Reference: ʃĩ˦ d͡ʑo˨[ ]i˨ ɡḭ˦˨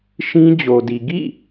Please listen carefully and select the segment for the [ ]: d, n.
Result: d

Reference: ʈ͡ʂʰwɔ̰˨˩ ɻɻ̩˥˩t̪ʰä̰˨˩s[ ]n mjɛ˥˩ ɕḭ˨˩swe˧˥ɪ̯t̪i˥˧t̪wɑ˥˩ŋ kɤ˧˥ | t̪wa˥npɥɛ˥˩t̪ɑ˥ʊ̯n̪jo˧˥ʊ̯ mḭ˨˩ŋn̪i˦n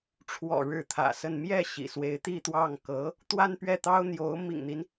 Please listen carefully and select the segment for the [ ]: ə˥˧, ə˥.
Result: ə˥˧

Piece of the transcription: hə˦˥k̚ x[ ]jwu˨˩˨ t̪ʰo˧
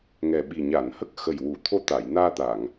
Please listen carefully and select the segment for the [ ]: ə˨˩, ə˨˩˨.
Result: ə˨˩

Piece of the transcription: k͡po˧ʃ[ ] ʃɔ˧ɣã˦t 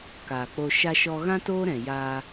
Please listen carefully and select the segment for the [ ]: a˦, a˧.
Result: a˦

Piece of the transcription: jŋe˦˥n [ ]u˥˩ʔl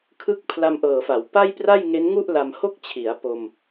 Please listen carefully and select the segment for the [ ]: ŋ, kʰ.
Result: ŋ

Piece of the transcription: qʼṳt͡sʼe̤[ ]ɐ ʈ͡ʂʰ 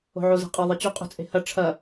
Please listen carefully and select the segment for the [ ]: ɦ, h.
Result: h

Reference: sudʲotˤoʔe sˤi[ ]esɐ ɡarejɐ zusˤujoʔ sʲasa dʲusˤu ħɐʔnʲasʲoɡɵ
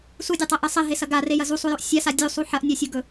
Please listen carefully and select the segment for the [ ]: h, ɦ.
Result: ɦ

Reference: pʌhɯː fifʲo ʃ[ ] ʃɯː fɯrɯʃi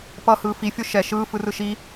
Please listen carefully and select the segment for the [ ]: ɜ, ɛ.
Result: ɛ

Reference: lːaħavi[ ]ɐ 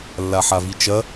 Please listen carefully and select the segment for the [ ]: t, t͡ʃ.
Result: t͡ʃ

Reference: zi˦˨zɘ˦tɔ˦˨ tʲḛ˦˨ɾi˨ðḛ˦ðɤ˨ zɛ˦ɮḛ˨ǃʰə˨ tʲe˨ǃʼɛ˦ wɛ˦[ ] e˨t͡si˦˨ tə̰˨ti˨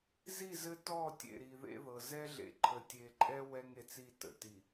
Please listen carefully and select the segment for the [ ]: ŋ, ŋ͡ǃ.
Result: ŋ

